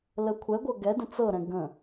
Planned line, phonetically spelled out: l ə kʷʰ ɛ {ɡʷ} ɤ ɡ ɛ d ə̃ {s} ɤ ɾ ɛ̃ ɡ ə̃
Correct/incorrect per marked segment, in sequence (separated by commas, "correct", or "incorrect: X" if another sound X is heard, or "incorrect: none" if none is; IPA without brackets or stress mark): correct, incorrect: t͡s